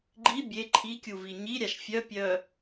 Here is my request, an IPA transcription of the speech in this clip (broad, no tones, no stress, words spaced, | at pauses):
ɡ͡ǃi bʲe ǃʰikʲuvi ɲiɾʲaʃ fʲœpʲœ